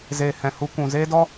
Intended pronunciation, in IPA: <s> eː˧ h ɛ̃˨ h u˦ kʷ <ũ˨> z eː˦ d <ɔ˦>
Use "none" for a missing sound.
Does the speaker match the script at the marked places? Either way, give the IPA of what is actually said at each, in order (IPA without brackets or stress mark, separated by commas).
z, ũ˨, ɔ˦